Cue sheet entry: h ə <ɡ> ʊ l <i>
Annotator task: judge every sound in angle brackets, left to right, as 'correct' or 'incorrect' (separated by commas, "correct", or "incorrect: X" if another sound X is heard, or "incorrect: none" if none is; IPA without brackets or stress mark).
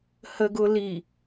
correct, correct